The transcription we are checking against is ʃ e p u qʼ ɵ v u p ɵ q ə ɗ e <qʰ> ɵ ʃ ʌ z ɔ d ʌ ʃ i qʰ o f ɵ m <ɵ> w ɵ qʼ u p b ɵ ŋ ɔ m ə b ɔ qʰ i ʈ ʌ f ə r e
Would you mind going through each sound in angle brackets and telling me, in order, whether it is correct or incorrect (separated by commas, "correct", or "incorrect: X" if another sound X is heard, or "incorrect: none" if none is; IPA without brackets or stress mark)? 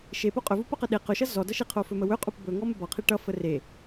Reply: incorrect: q, incorrect: ə